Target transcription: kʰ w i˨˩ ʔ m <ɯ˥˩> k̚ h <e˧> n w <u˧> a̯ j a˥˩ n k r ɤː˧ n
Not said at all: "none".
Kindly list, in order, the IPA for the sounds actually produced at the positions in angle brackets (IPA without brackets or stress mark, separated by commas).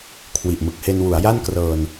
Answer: ɯ˨˩, e˧, u˩˦